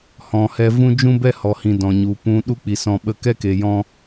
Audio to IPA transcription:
h ɔ̃˨ h ɛ˧ v ũ˦ d͡ʒ ũ˦ b ɛ˦ h ɔ˨ h ĩ˨ d ɔ̃˨ ɲ u˨ p ũ˧ ɗ u˧ k͡p i˨ s ɔ̃˨ ɓ ə˧ k ɛ˦ k e˨ j ɔ̃˧

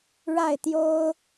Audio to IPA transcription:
ɻ a˥˩ ɪ̯ t̪ j o˥ ʊ̯

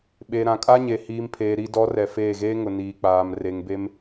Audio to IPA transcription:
ɓ e˨ ɾ ã˨ kʼ a˦ ɲ e˨ h iː˨ m pʰ eː˨ ɾ i˨ d ɔ˨˦ r ɛ˨ f eː˦˨ ɣ eː˦ ŋ ʊ˨ n iː˨ k͡p aː˨ m r e˨ ŋ b e˦ m

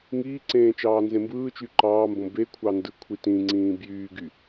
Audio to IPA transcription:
ŋ iː ǀ ẽː t͡ʃ ɑː n z ẽ m b ɯː t͡ʃ y ǃ ɑː m b õ b e kʷʰ ɑ n d ɯ kʷʰ i t ĩ ŋ͡ǀ ĩː b j yː ɡ y

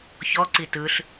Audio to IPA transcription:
ç ɔ ǀ i t ɯ ɬ

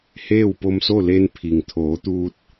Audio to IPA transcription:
h eː˥˨ w p o˧ m s o˥˨ l e˧ n pʰ i˩ ŋ t̪ʰ oː˩˧ t̪ uː˧ t̚

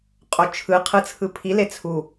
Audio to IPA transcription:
qʼ o t͡ʃʰ ɯ qʰ ɯ t͡sʰ ɯ pʰ i l e t͡sʰ u

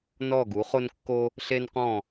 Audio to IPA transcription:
n ɔ˧˩ ɡ u˩˧ χ o˧ n kː o˧ | ɬ e˧ n q ɔ̃˧˩

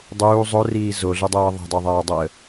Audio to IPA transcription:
dˤ uː zˤ o r iː z o ɮ ɯ dˤ ɤː ðˤ ɛ̤ dˤ o ðˤ aː dˤ ɤ ə̯

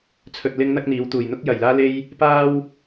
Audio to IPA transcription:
t͡sʰ ɵ˧ t̚ l ɪ˥ ŋ n̪ ɐ˥ k̚ n̪ iː˨˧ w t̪ uː˨˩ j n̪ ʊ˥ k̚ j ɐ˨˩ j l aː˥ l e˥ j | p aː˥ w

